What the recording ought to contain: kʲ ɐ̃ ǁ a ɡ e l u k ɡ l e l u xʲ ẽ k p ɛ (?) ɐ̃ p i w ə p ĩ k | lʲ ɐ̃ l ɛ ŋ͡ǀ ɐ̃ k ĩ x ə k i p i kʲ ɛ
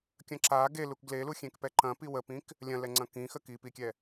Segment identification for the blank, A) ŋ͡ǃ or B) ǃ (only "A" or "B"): B